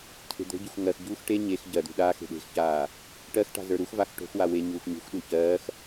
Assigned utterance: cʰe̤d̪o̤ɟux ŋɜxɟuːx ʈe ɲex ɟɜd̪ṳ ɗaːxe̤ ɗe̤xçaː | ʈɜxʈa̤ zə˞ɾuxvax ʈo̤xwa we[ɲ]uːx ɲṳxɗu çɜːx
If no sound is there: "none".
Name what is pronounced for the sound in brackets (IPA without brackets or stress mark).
ɲ